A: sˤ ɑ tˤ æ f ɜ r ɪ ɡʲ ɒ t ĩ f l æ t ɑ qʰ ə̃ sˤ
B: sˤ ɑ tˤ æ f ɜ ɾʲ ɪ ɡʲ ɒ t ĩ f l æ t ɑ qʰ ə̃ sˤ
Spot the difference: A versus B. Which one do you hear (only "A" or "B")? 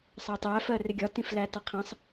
A